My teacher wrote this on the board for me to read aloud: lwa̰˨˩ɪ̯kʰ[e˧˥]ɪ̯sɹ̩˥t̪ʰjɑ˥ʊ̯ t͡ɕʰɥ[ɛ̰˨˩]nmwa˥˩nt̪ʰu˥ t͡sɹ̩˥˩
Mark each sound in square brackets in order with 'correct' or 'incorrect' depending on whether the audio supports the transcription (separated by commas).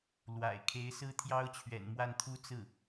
correct, correct